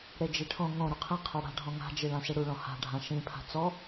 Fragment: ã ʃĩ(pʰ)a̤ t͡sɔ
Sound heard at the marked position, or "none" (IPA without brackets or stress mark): pʰ